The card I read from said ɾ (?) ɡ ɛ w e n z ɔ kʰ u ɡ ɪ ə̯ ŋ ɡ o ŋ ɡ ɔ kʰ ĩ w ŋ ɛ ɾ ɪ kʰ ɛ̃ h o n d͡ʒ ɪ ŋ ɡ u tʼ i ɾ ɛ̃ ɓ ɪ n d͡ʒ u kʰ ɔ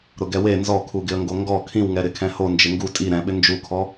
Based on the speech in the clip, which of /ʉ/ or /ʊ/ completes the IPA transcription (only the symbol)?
ʊ